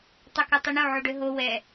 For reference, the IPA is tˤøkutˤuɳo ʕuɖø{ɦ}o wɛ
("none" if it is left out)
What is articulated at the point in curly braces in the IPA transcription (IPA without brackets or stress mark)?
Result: ɦ